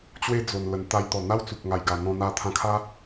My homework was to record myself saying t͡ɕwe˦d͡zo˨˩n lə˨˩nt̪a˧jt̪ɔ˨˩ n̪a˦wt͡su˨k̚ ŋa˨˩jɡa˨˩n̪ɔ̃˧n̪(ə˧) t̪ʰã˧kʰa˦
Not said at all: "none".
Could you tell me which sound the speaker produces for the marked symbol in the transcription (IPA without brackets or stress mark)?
a˧